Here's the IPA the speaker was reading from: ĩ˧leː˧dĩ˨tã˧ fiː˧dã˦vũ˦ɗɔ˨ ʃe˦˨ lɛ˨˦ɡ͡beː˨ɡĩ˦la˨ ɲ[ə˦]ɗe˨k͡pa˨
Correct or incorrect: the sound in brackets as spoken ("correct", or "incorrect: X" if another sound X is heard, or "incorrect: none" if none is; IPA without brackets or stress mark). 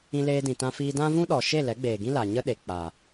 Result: correct